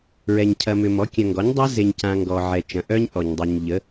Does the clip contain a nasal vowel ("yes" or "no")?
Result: yes